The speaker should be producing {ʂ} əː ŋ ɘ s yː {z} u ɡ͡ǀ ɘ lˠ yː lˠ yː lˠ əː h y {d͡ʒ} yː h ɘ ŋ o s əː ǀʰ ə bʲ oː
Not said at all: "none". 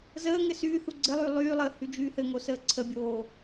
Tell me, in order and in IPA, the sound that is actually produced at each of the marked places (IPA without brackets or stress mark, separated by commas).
z, θ, d͡ʒ